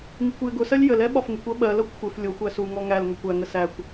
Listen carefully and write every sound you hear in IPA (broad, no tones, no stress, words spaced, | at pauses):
ŋikʷjɪɡʊsɜlʲ jəlɛ ɓɒfŋɪkʷɜ ɓɜlʌkʷ xʷɪf lʲʊxʷæ suŋɔ ŋælŋʌkʷ æŋə sækʷ